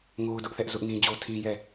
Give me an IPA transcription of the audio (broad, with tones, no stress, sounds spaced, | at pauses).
ŋ o˦ ʊ̯ d ʊ˦ ʔ θ ɛ˦ ʔ z ʊ˦ ʔ n ĩ˦ d͡ʑ o˦ tʰ ĩ˦ j ɛ˦˨